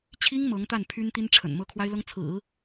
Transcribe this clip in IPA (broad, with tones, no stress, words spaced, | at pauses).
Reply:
t͡ɕʰi˥ŋ mɤ˧˥ŋt̪a˥˩n pʰy˥nt̪i˥nʈ͡ʂʰə̰˨˩n mɤ˥˩kʰwa˥ɪ̯lɤ˥ŋ t͡sʰɹ̩˨˩˦